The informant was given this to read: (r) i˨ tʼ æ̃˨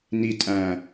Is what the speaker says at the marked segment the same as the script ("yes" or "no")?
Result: no